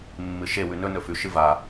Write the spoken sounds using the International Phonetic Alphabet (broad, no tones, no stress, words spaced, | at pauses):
mːɨʃe wʉnɵ nɵfʉ ʃɨva